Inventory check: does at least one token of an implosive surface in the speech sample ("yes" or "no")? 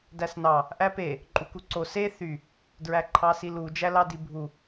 no